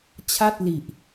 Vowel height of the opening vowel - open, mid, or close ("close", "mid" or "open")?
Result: open